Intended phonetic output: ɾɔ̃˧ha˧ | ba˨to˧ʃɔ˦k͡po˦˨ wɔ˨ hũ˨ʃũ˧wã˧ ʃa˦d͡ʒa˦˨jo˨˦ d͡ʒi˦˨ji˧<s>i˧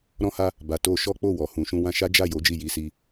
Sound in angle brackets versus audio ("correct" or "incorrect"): correct